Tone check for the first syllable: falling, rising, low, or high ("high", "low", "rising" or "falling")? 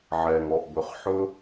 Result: low